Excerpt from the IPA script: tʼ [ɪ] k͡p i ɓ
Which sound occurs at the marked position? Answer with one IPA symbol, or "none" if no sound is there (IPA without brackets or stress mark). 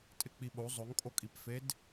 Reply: ɪ